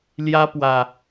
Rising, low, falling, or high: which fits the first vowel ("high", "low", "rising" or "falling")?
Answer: high